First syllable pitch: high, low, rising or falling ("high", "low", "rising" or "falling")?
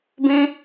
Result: high